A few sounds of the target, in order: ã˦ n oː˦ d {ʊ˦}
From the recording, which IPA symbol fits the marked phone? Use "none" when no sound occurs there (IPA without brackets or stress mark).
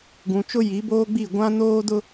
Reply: ʊ˦